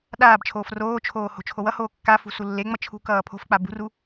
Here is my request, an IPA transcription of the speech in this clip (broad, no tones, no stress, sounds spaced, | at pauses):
ɗ aː b t͡ʃʰ oː f r oː t͡ʃʰ oː h o̤ t͡ʃʰ o w ʌ h oː kː a f ṳ s u lː e ŋ͡m ʌ t͡ʃʰ ṳ k ʌː pʰ o̤ f k͡p a b ṳ r u